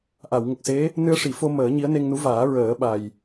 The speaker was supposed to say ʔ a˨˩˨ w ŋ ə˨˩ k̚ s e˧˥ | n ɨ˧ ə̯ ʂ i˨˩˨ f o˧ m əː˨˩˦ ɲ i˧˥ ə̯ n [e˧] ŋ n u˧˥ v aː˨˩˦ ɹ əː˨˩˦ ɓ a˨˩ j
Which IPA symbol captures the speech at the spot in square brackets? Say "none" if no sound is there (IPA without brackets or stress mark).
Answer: e˧